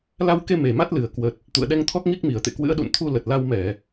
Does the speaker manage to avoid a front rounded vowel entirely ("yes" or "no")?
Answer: yes